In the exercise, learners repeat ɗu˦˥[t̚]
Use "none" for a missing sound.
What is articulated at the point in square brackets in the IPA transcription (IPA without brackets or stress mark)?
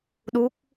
k̚